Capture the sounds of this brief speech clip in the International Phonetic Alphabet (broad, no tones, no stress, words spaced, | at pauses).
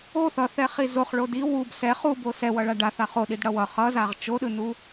o θʌθɛχi zoχɭo di wub sɛ χubo sɛwʌɭa ɖaθa χoɗidɽʌ wʌ χʌzaʁ t͡ʃoɗɯnu